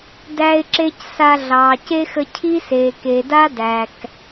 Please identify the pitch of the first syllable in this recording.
high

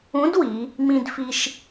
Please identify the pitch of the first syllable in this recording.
rising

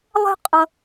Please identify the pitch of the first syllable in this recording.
high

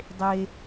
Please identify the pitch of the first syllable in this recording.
high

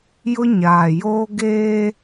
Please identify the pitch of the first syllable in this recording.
high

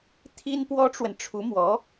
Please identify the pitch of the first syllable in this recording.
high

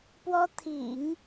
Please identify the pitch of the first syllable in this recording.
high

